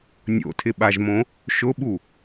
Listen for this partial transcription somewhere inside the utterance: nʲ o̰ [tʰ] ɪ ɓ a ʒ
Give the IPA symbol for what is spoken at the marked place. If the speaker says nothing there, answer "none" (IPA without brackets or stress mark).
tʰ